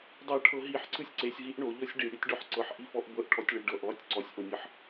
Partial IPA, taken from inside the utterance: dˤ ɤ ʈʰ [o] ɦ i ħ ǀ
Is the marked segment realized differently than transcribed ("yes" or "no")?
yes